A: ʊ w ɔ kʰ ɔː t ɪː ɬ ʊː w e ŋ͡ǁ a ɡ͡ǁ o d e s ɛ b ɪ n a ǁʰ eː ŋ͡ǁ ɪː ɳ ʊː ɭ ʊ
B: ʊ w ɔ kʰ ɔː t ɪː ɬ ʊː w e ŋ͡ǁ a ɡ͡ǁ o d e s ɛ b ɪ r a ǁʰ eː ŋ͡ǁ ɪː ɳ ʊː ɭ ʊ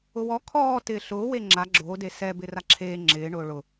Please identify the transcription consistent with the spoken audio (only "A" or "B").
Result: B